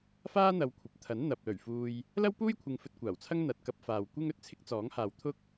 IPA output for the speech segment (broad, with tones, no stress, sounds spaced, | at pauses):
f aː˥ n̪ ɐ˨˧ w kʷʰ ɐ˨ p̚ t̪ʰ ɐ˨˥ n n̪ ɐ˨ p̚ l ɵ˨˩ ɥ f uː˧ j | l ɐ˥ w p uː˥ j kʷʰ ɪ˧ ŋ f ɵ˧ t̚ kʷ aː˨˩ w t͡sʰ ɐ˥ ŋ n̪ ɐ˨ t̚ k ɐ˧ p̚ f aː˨ w kʷ ɪ˥ ŋ ɵ˨ t̚ t͡sʰ ɪ˥ k̚ t͡s ɔː˨˥ ŋ h aː˨ w t̪ʰ ʊ˥ k̚